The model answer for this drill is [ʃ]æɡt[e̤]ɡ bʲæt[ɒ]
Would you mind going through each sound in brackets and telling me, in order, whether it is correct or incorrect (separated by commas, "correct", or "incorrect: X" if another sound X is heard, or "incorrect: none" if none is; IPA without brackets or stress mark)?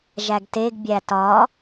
incorrect: ʒ, incorrect: e, correct